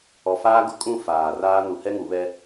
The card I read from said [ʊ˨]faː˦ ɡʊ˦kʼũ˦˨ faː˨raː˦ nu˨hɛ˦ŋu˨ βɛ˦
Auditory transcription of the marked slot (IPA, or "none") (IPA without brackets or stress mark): ɔ˨